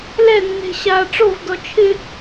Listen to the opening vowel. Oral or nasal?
oral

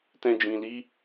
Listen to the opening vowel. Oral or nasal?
nasal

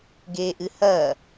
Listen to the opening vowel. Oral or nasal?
oral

